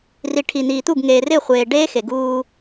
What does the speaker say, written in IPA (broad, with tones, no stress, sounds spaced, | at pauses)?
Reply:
r i˨ ʈʰ i˨ n̪ iː˨ t̪ u˦˨ ɡ ŋ eː˨ r ɪː˦˨ χʷ eː˨ ɖ eː˦ x e˨ ɡ uː˦